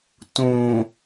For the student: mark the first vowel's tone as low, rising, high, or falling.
low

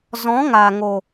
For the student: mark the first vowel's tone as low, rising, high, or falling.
rising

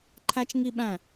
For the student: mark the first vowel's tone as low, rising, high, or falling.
high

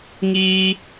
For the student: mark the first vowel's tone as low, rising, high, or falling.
high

